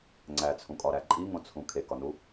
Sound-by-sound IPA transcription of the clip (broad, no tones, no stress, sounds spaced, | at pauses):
ŋ͡ǀ æ t͡sʰ ũ kʼ ɒ ɾ æ ǃʼ i ŋ õ t͡sʰ ũ kʰ e k ɒ n u